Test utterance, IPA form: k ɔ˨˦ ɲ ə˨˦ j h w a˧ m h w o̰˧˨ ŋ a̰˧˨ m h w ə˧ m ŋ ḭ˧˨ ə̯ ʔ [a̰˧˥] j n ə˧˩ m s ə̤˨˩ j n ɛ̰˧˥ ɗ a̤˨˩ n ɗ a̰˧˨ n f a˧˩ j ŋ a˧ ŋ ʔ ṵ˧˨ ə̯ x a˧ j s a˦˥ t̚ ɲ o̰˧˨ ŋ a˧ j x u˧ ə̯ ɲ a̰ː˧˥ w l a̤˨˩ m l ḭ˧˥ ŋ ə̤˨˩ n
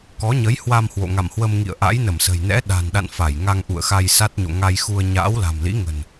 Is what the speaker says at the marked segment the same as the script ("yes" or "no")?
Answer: yes